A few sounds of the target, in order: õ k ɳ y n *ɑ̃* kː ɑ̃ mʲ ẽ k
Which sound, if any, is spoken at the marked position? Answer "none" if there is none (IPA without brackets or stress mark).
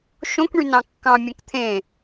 ɑ̃